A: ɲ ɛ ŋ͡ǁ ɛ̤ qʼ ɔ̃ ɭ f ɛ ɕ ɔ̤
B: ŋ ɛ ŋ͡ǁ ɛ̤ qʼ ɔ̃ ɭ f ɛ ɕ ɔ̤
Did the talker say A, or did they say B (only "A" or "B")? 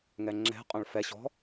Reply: B